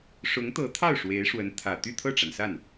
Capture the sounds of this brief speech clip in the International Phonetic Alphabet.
ʂ ʊ˧˥ ŋ t̪ ɤ˧˥ t̪ʰ ɑ˥˩ ʊ̯ ʂ w e˧˥ ɪ̯ ʂ w ə˧˥ n t̪ʰ ä˨˩ t̪ y˥˧ t̪ʰ ɤ˥˩ ʈ͡ʂ a˩ n s a˥˩ n

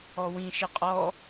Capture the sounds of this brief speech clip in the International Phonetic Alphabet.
ɔ w ĩ ʃ ɪ qʼ ɔ

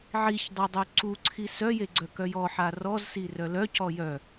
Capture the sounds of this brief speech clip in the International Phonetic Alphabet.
ʕ i ç dˤ œ dˤ œ ǀ u ǀʰ i s œ j e ɡ͡ǀ œ k œ j ɔ ħ a r ɔ z s i r œ l œ c ɔ j œ

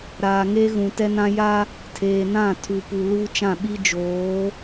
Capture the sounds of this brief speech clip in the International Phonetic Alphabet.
ɾ aː˨ ŋ e˦ ɣ ũ˨ t ɛ˦ n ã˦ j a˦ | tʰ eː˨ n ã˦˨ tʰ u˨ p u˨ l uː˦ t͡ʃ ã˦˨ ɓ i˦ d͡ʒ oː˨˦

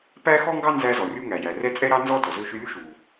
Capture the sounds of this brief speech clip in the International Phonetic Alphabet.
p æ˥ x ɔ˥ ŋ ɡ ɑ˥ n z æ˥ z ɔ˩ rʲ u˥ ŋ æ˩ j æ˩ r ɛ˥ t͡sʼ ɛ˥ ɾ ɑ˥ n z ɔ˥ d ɔ˩ z ɵ˥ ʃ ʉ˥ lʲ u˥ ʃ u˩

